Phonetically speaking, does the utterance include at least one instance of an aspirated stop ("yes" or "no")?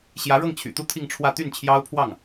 yes